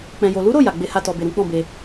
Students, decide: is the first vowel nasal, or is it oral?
nasal